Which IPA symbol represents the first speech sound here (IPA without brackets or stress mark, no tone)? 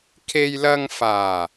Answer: kʰ